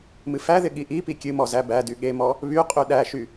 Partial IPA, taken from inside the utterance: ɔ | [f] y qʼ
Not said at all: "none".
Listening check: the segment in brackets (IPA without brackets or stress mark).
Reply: β